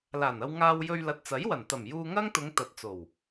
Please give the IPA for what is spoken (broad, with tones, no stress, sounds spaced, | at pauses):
l aː˨˩ n ɐ˧ w ŋ aː˧ w j ɵ˧ ɥ l ɐ˨ t̚ t͡s ɐ˨˥ j w ɐ˨˩ n t̪ ɐ˨˩ m j uː˧ ŋ ɐ˥ ŋ t̪ ʊ˨˧ ŋ t̪ ɐ˨˥ t̚ t͡s o˨˩ w